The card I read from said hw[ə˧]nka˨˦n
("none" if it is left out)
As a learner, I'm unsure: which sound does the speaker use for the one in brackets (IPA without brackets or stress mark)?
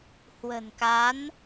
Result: ə̤˨˩